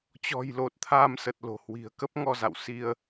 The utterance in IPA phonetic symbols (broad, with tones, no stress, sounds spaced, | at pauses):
t͡ɕ ɔ̤˨˩ j l o˨˩ t̚ t̪ʰ aː˧ m s ə˨˩ t̚ l o̤˨˩ h w i̤˨˩ ə̯ k ə˦˥ p̚ ŋ ɔ˧ z a̰˧˨ w s i˧ ə̯